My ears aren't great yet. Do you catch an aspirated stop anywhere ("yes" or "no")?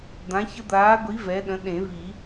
no